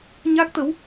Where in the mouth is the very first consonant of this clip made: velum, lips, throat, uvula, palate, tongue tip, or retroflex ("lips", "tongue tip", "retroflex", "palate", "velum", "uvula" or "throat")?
palate